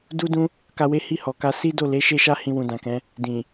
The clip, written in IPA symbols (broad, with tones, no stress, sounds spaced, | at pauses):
d u˦ d ũ˦ | k a˧ w e˦ h i˦˨ h ɔ˨ k a˧ s i˦ d o˦˨ l e˨˦ ʃ e˦ ʃ a˦ h ĩ˧ w ũ˨ d ã˨ k ɛ̃˨˦ | d ĩ˨